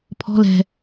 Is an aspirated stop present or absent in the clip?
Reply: present